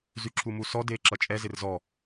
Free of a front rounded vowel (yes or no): no